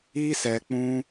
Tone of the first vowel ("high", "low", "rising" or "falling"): high